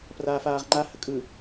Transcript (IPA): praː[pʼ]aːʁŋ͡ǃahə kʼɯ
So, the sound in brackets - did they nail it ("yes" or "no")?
no